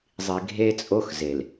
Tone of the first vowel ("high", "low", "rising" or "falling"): low